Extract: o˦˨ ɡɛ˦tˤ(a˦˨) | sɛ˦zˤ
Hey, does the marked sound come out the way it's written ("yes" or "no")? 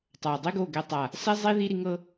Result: yes